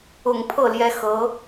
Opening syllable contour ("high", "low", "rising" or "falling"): low